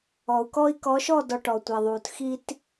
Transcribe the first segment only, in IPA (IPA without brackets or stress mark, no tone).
ɔ